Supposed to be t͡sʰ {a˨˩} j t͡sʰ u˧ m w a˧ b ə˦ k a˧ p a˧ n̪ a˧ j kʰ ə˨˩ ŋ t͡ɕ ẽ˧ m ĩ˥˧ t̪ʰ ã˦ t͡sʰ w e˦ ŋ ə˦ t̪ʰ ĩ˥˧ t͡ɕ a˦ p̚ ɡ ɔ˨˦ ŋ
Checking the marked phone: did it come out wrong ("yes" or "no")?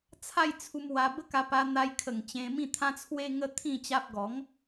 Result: yes